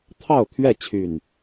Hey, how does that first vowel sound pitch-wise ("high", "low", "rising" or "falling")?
falling